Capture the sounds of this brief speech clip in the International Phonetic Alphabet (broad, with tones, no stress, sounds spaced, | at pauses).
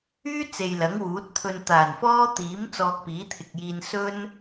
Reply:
yː˥ t͡s e˨ j l ɐ˨˥ ŋ w uː˨˥ t̚ t̪ʰ ɵ˧ n t̪ aː˨˩ n f ɔː˥ t̪ iː˨˥ m t͡s ɔː˧ k̚ p iː˨˥ t̪ʰ ɪ˨ k̚ j iː˧ n s ɵ˥ n